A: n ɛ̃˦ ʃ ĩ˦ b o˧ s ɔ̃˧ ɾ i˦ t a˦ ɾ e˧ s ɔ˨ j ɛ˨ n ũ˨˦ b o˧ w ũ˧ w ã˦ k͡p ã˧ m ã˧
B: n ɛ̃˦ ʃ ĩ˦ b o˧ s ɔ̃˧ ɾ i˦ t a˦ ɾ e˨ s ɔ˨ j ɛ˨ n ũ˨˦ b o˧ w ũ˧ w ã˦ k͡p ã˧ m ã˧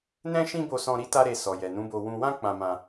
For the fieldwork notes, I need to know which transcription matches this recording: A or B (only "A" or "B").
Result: A